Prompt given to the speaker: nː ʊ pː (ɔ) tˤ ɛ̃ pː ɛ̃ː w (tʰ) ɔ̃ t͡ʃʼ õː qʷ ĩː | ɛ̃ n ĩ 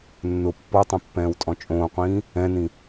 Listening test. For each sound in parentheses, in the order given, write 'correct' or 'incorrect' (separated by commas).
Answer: correct, incorrect